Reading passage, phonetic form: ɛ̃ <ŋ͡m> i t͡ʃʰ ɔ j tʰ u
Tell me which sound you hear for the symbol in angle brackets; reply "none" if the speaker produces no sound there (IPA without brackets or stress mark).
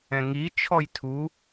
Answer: ŋ